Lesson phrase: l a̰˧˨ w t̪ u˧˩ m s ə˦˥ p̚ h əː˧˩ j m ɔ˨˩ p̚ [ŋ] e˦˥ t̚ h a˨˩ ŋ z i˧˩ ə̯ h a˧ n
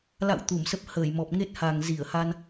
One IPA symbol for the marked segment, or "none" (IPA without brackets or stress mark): ŋ